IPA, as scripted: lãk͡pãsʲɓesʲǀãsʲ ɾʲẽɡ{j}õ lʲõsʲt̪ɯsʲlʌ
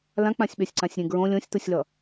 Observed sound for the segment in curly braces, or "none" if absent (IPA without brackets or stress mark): ɹ